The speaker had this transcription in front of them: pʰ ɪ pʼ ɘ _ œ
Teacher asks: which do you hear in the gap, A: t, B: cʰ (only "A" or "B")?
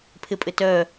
A